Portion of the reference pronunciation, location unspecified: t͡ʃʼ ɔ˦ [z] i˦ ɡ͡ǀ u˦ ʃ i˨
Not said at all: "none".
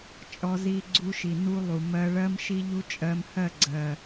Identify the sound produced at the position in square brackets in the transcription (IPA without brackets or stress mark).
z